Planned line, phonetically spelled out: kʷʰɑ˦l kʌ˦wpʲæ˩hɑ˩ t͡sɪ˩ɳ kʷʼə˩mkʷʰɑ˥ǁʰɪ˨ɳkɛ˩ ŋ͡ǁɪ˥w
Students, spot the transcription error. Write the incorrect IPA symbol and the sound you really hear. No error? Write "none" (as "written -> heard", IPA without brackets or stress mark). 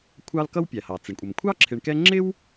ɛ˩ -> ɛ˦